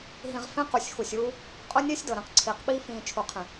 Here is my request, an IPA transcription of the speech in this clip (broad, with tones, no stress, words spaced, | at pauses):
ɦĩ˨ʁ fẽ˦qu˨sʲxu˨sʲ uː˦ | qʼʊ˦nʲe˦sʲ dɤ˨ɾẽ˨qǀʰiː˨qɓiː˦ fĩː˨ t͡ʃʰu˨qʰẽ˨